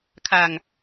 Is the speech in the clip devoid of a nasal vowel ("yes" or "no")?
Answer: yes